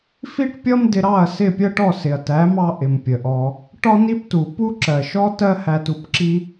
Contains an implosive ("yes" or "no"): no